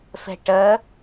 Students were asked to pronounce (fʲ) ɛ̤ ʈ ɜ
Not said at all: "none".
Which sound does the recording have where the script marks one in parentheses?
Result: f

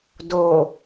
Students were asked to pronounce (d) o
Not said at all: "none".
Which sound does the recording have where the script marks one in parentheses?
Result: d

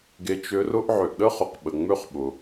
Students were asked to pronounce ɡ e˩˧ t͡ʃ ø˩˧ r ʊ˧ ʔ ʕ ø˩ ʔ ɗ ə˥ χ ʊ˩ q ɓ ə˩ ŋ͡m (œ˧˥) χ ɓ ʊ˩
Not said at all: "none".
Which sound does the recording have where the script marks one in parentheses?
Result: ø˧˥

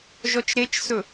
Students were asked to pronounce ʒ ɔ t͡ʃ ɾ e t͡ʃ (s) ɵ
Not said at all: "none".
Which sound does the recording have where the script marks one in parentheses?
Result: s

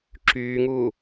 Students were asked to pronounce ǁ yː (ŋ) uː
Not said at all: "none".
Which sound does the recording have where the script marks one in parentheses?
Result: ŋ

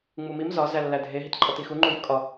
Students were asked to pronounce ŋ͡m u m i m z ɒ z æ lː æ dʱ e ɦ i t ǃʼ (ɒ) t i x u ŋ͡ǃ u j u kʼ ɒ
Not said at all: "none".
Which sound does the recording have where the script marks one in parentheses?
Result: ɒ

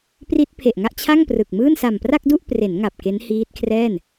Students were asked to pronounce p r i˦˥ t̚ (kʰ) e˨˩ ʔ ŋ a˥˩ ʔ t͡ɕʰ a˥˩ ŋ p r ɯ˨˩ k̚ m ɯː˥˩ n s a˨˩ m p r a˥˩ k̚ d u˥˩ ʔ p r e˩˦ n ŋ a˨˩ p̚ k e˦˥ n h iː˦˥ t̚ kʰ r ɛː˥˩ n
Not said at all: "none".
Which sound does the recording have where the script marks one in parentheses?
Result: pʰ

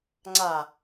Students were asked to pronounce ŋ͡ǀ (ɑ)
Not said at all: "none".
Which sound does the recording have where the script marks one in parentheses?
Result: a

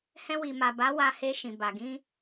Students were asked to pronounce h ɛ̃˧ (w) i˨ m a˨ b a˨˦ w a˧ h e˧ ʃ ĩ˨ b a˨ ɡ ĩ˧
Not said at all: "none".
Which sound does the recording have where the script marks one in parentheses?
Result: w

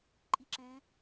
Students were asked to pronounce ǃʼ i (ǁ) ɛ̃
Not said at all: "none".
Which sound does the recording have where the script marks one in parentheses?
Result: ǁ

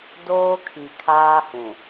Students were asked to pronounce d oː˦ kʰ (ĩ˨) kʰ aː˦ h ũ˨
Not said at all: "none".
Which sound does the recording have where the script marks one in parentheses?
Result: i˨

